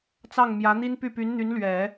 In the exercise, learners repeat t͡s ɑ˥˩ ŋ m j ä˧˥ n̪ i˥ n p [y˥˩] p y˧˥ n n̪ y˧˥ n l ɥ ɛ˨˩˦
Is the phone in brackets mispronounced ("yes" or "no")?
no